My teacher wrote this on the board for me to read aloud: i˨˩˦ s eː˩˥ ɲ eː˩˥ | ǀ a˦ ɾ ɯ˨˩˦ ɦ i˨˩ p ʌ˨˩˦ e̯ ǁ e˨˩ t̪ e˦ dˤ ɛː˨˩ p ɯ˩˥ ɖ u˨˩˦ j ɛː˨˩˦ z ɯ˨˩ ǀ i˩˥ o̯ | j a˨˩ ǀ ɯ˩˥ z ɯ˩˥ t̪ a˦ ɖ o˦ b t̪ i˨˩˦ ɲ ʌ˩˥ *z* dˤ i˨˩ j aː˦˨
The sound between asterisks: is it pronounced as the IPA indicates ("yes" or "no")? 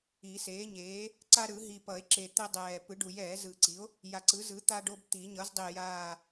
yes